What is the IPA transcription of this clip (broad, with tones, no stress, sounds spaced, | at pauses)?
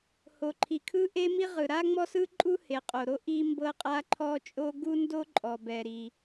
h o˩ ǃʰ i˩ kʰ ɯ˥ ʔ e˥ m i˥ ʁ ɯ˩ ɾ a˥ ŋ͡m ɔ˥ s ɯ˥ ǃʼ u˥ h e˩ qʼ o˩ ɾ o˥ ʔ i˥ m b ɤ˥ qʼ a˥ ǃʰ ɔ˥ t͡ʃʼ o˥ ɡ u˥ n d o˥ ǃʼ ɔ˩ b ɛ˩ ɾ i˩